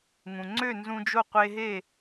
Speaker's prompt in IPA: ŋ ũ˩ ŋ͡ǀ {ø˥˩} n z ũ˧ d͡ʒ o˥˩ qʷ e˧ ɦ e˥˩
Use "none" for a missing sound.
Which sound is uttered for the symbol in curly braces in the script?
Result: ø˥˩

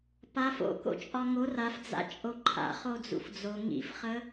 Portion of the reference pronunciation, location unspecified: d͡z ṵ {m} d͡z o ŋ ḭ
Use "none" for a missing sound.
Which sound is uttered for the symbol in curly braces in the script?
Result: f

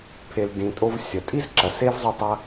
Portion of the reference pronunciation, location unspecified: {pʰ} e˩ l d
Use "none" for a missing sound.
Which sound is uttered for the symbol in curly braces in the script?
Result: pʰ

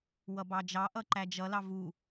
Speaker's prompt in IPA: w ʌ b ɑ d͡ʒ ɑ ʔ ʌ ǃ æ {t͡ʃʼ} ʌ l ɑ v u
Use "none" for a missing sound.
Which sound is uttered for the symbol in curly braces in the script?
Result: d͡ʒ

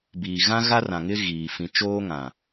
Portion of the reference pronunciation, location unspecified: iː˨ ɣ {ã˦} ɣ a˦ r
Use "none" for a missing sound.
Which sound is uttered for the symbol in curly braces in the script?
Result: ã˦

